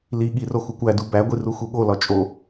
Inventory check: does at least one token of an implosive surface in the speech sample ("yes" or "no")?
yes